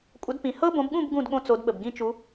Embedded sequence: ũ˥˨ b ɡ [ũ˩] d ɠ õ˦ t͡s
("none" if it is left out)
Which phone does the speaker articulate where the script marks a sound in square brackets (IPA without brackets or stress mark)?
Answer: ũ˥˨